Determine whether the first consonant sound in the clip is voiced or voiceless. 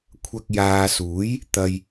voiceless